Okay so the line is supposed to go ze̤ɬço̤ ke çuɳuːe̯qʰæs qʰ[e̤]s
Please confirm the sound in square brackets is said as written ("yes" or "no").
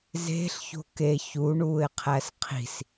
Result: no